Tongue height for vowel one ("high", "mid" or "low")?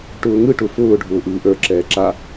high